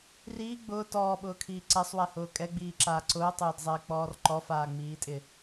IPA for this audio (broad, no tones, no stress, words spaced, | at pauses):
riː ɡ͡bʊː tɔːɓʊːkʰiː ǀɛsˤwɛhʊː kʼɛɡ͡biːǁaː ǀʊːtˤʊːdzˤɛɪ̯k͡pɔːr ǃɔfaːŋ͡miːtʼɪ